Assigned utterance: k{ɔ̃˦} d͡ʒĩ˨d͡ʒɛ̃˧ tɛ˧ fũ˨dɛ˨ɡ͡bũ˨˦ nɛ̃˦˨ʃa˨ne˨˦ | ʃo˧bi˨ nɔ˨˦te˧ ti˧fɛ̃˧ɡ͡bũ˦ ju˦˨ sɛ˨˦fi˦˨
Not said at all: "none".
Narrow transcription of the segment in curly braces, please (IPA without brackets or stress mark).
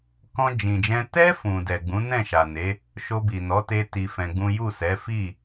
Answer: ɔ̃˧